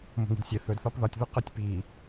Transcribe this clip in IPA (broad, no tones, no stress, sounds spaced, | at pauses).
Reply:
m o̤ ŋ i̤ d sʲ e θ ɵ d θ ɒ p ð ɒ tʲ ð u q ɵ tʲ p i